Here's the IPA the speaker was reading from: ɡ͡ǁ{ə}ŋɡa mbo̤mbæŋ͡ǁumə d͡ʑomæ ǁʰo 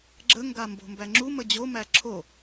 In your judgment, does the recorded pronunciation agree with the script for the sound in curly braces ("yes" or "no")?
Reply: yes